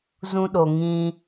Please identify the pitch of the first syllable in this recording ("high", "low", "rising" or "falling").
high